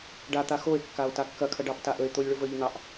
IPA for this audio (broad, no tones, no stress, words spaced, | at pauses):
ɖat̪a xoe̯kːao̯ takːɐkʰɐ ɖɑptaʔəe̯t̪olʲ ɭʊvəʎn̪ɑʔ